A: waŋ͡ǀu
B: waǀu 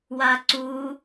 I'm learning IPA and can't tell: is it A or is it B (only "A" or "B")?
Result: B